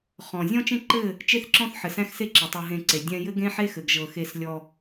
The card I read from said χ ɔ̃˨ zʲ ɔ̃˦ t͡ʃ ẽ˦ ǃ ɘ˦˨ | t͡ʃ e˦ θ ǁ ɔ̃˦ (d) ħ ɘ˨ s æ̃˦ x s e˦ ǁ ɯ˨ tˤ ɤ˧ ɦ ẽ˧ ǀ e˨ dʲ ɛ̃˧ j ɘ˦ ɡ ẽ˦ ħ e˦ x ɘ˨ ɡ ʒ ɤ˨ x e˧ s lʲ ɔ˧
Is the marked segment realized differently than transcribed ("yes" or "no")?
yes